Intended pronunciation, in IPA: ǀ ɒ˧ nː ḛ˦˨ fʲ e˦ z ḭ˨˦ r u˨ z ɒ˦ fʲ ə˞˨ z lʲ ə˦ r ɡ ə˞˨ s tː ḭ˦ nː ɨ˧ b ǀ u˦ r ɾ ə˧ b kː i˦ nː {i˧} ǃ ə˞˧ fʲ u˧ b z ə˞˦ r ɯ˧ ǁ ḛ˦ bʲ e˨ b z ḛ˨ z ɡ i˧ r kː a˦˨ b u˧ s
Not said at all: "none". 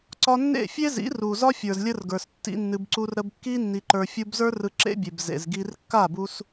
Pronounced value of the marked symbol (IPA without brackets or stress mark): i˧